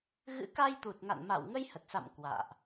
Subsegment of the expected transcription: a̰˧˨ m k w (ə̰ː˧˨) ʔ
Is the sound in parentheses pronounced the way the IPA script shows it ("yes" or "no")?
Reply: no